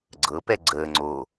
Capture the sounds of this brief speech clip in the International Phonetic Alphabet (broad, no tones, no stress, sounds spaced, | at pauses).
ɡ͡ǀ ɤ p ɛ ɡ͡ǀ əː ŋ͡ǀ o